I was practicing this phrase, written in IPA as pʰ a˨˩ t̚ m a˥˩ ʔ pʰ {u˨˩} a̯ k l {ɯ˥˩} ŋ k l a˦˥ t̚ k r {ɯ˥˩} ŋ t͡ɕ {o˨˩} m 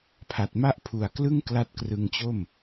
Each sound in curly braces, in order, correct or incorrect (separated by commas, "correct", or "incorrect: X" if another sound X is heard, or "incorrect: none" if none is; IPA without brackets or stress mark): correct, correct, incorrect: ɯ˧, incorrect: o˥˩